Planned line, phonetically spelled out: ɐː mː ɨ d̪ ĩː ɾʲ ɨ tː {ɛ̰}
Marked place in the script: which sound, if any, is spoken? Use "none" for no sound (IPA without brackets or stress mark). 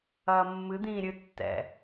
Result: ɛ̰